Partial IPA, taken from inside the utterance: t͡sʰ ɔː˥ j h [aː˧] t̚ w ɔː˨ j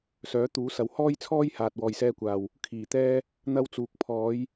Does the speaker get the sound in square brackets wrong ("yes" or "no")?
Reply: yes